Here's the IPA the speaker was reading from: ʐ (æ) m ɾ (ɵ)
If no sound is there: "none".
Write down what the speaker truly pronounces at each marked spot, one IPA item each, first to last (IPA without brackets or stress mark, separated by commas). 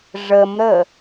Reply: ə, ə